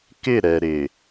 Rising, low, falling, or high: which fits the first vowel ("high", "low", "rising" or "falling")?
falling